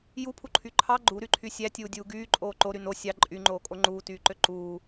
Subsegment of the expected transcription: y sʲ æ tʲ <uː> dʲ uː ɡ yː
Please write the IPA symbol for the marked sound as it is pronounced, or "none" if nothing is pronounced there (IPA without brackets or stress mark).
uː